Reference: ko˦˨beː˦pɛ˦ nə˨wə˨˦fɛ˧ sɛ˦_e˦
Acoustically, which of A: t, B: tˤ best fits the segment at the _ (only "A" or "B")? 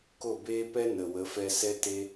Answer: A